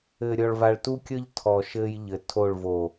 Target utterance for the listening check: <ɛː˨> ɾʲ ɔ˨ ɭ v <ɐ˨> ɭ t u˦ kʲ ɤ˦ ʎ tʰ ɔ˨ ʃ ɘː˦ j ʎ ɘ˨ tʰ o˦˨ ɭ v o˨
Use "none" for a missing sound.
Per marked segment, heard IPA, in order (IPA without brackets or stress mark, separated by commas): ɘː˨, a˨